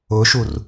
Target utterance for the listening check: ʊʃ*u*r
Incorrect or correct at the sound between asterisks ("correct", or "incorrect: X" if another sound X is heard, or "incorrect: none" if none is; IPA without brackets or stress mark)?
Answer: correct